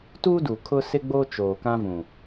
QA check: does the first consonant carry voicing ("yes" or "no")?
no